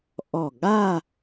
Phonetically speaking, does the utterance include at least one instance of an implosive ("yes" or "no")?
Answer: yes